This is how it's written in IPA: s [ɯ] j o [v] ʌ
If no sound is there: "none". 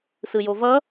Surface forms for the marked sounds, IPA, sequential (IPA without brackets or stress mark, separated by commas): ɯ, v